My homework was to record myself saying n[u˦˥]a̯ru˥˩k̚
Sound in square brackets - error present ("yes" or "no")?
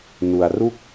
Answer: yes